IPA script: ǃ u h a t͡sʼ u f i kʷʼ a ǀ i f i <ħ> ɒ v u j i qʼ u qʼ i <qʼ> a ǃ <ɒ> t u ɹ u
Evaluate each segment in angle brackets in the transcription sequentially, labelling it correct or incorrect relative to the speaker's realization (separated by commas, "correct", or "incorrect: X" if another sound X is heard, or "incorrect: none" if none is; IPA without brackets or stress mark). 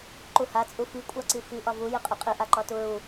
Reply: incorrect: ʔ, incorrect: ʔ, correct